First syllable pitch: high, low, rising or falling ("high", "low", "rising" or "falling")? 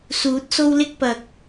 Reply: rising